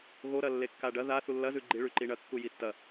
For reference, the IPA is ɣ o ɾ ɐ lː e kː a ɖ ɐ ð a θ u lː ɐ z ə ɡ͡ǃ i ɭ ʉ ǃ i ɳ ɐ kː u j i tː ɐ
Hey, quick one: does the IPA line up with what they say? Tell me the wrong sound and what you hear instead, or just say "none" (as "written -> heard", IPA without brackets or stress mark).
ə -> ʉ